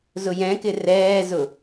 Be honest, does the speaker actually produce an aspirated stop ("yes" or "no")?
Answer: no